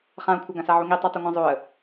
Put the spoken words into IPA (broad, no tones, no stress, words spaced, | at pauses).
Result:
χãʊ̯kʷʰaɡãsa ʕuŋi tˤetˤɨŋʷãzˤoə̯